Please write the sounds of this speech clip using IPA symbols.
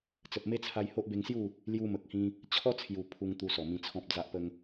t͡s ə˨ p̚ m e˦ t͡sʰ a˧ j h o˦ ʔ b e˧ ŋ s j u˥˧ | l j u˧ m ə˨ k̚ h ĩ˧ | t͡ɕʰ ɔ˦ t͡sʰ j u˨˩ pʰ u˧ ŋ t̪ u˧ s ɔ˨˩ m ĩ˧ t͡sʰ ɔ̃˦ p̚ d͡z a˦ ʔ p ə˦ ŋ

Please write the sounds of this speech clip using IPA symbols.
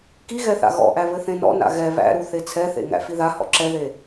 k i ɣ ɛ θ a̰ ɣ ɔ̰ ʔ æ β ɘ θ ẽ n ɔ̰ n a̰ ɣ ɛ β æ̰ ɾ u θ e t͡sʰ ɛ θ ḛ ŋ æ̰ f i ð a h ɔ̰ ǁ ɛ ð e

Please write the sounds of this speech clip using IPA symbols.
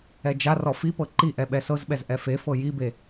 ɛ d͡ʒ a r ɔ f i p ɤ ǃ i ʔ ɛ ɓ ɛ s ɤ z ɓ ɛ z ʔ ɛ f e f ɤ j i b e

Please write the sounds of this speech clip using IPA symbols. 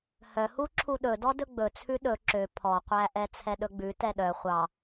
h œ h u ǁʰ u ɗ ɵ d ɔ d ɵ ɡ͡b ɵ t͡sʰ ʉ ɗ ɵ ǁ ø pʰ ɔ qʷ æ ʔ ɛ t͡sʰ ɛ ɗ ɵ ɡ͡b ʉ t ɛ ɗ œ χʷ ɑ

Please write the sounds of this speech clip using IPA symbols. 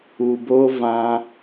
u˨ b o˧ v ã˧

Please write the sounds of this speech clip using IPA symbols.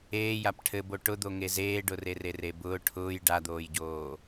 eː j a p ʈʰ ɘ b o ʈ ʊ d̪ o ŋ e z eː ɖ ʊ r e r e r e b ʊː ʈʰ ʊː j ɖ a d̪ oː j ɟ oː

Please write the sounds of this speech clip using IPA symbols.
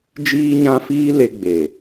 d͡ʒ iː˦ ɲ ã˦ f iː˦ l e˧ ɡ͡b e˨

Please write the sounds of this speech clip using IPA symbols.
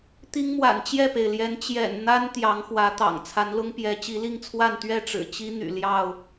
t̪ i˦ ŋ m w a̰˨˩ n t͡ɕ j ɛ˥˨ p e˩ ɪ̯ l j ɛ˨˦ n t͡ɕ j ɛ̰˨˩ n n̪ a˦ n t̪ j ɑ˨˦ ŋ x w ä˨˦ t̪ ɑ̰˨˩ ŋ t͡sʰ a˨˦ n l ʊ˦ ŋ p j ɛ˨˦ t͡ɕ i˨˦ l i˥˨ ŋ t͡sʰ w a˥˨ n t̪ ɥ ɛ˥˨ ʈ͡ʂ ɻ̩˨˩ t͡ɕ i˦ n̪ y̰˨˩ l j ɑ˥˨ ʊ̯

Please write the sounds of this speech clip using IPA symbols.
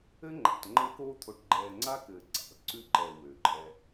ɘ˦ ŋ͡ǃ a̰˨ t ŋ͡ǃ ɘː˦ k oː˦ t̪ʰ o˨ ʈ ɡ͡ǃ ɛː˨ ŋ͡ǀ a˦ k ɘː˨ ǀ a̰˨ l ǀ ʉ˦ ǃ ɛ˨ w ø˨ ǃʼ ɛ˦

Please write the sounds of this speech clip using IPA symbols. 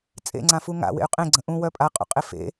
t͡sʼ ḛ ŋ͡ǀ ã f u ŋ a̰ w ḛ y̯ qʼ ẽ ɡ͡ǀ ə̃ ʔ ũ w œ pʼ a qʼ ṵ qʼ e f ḛ

